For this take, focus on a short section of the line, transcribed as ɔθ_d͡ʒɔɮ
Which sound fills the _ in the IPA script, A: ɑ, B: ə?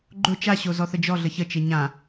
B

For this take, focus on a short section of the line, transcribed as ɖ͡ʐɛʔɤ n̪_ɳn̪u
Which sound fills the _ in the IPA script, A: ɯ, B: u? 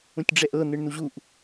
A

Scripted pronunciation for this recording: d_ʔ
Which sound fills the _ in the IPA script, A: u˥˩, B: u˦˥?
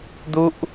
B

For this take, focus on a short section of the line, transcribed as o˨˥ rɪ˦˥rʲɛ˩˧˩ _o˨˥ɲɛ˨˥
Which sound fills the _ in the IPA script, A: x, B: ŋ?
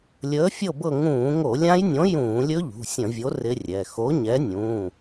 A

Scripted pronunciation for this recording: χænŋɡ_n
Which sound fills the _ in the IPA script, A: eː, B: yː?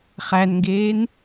A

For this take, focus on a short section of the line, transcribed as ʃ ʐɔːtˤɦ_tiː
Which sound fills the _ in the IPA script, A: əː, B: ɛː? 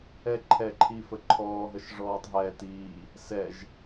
B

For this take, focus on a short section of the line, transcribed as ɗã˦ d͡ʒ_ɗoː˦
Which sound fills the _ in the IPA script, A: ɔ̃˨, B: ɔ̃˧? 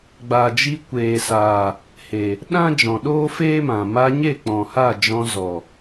A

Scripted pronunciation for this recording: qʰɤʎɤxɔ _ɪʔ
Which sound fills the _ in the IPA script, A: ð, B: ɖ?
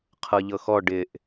B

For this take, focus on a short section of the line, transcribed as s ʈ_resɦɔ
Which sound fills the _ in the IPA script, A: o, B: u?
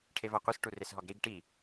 B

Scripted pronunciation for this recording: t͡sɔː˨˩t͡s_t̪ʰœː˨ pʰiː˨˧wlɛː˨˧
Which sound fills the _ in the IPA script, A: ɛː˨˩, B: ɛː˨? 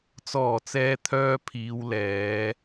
B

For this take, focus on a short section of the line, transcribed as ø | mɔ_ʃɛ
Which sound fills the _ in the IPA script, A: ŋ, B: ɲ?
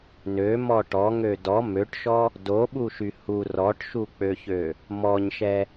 B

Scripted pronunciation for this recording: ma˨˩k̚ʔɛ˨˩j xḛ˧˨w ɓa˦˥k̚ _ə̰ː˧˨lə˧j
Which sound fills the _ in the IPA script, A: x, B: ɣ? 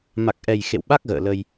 B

